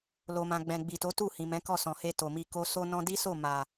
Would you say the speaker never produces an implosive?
yes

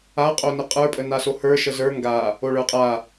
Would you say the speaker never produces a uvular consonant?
no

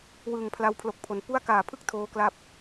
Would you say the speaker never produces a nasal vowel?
yes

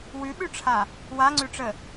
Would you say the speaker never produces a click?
no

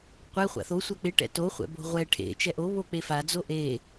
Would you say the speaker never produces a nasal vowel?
yes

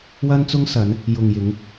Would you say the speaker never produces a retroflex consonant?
yes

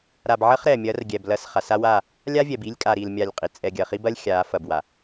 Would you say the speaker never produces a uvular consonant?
no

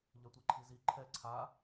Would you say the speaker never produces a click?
no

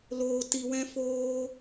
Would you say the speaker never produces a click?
yes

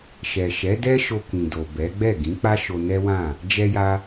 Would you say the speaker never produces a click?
yes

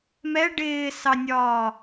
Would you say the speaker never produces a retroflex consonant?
no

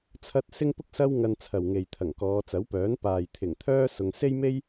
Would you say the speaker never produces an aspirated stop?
no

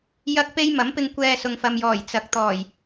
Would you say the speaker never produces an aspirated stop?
yes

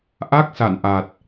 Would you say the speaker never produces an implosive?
yes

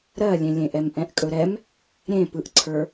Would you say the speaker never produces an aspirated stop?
no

